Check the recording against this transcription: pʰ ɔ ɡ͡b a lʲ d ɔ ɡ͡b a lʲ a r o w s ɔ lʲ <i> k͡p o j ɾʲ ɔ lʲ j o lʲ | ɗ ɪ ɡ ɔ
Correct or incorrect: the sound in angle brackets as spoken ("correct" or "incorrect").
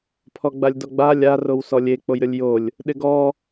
incorrect